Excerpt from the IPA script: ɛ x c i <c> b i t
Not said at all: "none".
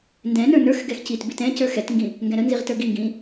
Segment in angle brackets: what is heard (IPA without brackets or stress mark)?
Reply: t